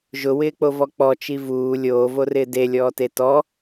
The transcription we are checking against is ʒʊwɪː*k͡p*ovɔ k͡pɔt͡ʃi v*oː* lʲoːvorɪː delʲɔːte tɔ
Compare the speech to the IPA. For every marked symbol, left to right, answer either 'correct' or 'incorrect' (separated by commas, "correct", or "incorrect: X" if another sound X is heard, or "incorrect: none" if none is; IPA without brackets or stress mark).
correct, incorrect: uː